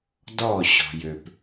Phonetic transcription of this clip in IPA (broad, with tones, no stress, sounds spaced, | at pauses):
d ɔ˦˨ ɕ ɔ̤˨ j ø˨ p